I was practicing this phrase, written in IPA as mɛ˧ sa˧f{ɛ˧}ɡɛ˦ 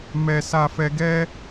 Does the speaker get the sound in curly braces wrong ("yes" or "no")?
no